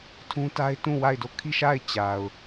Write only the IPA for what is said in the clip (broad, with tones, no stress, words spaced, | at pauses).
tʰũ˦ta˦ɪ̯tũ˦˨ wa˦˨ɪ̯do˦˨ kʰi˦˨ʃa˦˨ɪ̯ t͡ɕa˨ʊ̯